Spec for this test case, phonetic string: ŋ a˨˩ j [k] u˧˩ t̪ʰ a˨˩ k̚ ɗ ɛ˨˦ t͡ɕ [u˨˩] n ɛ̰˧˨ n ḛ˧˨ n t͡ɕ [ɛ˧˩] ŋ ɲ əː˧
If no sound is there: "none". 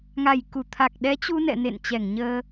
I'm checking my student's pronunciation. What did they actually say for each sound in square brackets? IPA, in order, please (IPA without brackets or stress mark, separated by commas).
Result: k, u˧, ɛ˧˩